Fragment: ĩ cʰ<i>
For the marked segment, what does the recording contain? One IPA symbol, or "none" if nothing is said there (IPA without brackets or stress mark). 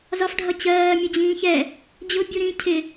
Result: ɪ